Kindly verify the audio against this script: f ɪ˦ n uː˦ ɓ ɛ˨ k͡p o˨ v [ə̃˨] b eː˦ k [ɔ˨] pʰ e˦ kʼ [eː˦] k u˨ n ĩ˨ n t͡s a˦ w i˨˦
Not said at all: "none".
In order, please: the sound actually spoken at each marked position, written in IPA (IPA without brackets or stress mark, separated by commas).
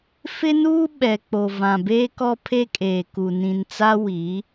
ã˨, ɔ˦, eː˨